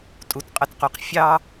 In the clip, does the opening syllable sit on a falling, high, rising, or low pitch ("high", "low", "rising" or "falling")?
low